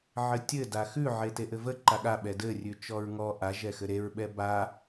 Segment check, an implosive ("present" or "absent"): present